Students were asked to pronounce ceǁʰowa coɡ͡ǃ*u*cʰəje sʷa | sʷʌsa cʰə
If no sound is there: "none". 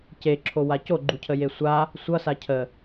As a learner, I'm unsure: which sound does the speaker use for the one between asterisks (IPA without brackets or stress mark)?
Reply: u